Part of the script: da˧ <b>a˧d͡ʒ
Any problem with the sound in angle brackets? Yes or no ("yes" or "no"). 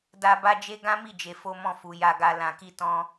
no